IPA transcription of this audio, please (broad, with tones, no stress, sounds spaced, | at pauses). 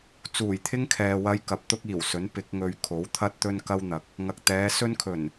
t͡s uː˨˩ j t̪ʰ ɪ˥ ŋ kʰ ɛː˨ w ɐ˧ j k ɐ˨˥ p̚ t̪ ʊ˥ k̚ iː˨˩ w s ɵ˨˥ n p ɪ˨˥ k̚ ŋ ɵ˧ ɥ kʰ o˨˥ w t̪ʰ ɐ˥ t̚ t̪ ɵ˥ n k ɐ˥ w n̪ ɐ˨˥ k̚ | ŋ ɐ˨ k̚ t̪ ɛː˨˧ s ɵ˥ n kʰ ɵ˨˩ n